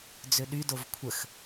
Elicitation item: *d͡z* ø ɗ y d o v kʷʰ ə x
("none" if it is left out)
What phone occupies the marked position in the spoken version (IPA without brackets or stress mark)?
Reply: d͡z